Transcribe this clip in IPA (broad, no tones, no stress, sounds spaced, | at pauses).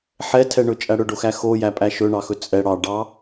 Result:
ħ ɛ tʰ ɛ ɳ ɵ t͡ʃʼ æ ɽ ɵ ɖ o x æ x o j æ pʼ æ ʃ ɵ ɳ ɑ x ɵ t͡sʼ ɛ ɽ ɑ ɖ ɑ